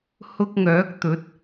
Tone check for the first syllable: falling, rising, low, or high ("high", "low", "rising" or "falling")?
high